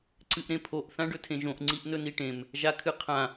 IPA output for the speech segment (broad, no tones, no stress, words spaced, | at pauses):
ǀɨʔɾẽpʰoʔ θãɖɵtʰẽʒõʔ ŋ͡ǀiʔnɵniʈẽm | ʒakʰɨqʰã